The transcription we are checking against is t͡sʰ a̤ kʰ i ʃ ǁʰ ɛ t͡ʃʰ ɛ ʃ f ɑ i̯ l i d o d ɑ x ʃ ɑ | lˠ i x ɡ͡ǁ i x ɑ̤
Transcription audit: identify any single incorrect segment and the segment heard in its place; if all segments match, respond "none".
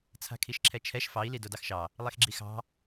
none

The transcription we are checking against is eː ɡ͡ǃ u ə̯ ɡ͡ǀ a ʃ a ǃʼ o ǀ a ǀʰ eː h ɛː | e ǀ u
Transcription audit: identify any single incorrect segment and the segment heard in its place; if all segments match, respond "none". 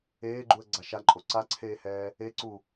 none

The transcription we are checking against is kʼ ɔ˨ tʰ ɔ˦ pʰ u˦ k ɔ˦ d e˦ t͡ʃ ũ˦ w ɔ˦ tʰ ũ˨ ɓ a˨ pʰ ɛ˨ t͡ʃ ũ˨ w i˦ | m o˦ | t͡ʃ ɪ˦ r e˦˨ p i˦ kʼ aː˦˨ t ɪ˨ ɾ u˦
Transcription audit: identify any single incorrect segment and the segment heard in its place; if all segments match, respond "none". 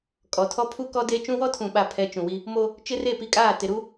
none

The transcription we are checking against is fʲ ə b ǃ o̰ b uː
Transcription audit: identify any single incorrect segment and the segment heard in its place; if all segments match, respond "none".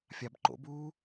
ə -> a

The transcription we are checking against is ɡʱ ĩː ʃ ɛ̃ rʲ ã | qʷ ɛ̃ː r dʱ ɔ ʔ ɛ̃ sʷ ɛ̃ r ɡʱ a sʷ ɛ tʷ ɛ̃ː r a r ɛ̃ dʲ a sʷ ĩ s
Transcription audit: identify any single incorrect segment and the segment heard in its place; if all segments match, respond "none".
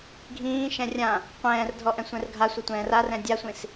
none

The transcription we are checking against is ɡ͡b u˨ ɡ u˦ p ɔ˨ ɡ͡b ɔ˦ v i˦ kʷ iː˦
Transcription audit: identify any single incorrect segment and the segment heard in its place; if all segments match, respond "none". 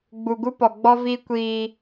none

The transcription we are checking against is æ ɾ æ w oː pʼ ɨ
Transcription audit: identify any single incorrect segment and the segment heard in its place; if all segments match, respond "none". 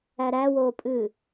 none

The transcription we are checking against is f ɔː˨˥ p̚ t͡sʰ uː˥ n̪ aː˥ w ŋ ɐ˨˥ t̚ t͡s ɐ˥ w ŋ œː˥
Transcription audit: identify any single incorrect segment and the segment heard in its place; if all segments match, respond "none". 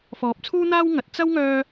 none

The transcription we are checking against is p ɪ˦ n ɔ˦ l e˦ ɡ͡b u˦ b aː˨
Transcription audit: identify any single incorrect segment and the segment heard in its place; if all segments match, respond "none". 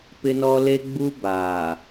none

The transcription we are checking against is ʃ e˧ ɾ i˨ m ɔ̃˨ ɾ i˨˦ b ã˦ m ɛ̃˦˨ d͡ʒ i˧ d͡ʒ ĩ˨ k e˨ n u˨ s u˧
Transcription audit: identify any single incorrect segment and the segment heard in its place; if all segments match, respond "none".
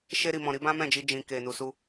none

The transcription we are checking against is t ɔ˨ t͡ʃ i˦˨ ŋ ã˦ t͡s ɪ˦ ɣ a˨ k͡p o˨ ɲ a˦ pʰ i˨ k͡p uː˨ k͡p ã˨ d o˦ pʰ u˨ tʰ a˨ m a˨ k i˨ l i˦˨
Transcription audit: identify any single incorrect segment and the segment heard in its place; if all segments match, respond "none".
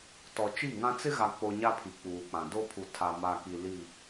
none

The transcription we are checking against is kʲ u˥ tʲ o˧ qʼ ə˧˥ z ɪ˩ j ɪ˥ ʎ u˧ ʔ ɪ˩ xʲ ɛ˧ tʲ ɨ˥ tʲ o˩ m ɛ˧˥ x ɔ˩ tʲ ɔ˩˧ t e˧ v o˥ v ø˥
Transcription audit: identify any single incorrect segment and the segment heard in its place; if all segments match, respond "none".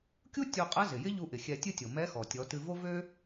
e˧ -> ɨ˧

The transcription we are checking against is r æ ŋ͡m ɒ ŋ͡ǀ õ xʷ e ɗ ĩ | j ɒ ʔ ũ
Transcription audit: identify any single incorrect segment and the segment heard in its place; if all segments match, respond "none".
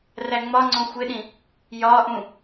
none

